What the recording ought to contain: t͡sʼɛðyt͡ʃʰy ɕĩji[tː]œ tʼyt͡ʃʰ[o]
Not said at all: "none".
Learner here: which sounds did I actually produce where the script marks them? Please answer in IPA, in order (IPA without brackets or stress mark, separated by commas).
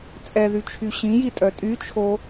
tʼ, o